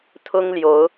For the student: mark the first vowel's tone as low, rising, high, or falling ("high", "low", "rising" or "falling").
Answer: high